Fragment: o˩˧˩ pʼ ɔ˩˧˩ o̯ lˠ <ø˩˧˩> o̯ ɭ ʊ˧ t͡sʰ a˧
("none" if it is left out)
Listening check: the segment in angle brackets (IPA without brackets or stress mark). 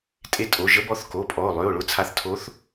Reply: ø˩˧˩